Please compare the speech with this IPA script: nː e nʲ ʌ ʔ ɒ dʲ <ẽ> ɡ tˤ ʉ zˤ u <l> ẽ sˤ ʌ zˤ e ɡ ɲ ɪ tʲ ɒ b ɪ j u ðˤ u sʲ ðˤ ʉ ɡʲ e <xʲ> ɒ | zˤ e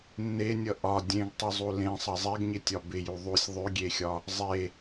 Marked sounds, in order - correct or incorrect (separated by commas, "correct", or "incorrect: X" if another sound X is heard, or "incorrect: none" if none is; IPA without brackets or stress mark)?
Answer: correct, correct, correct